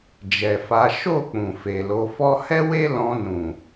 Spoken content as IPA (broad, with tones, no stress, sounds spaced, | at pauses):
d͡ʒ ɛ˨ f a˨˦ ʃ o˦˨ k͡p ũ˨ f e˨ l o˨˦ f ɔ˦ h ɛ˦ w e˦ l ɔ̃˧ n ũ˨